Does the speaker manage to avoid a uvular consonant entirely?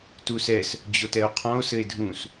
no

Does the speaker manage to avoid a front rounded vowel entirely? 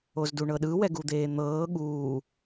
yes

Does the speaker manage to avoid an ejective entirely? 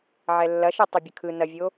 yes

